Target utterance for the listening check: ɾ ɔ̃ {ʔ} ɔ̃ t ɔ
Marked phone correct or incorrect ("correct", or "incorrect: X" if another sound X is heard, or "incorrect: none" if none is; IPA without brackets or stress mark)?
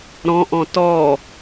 correct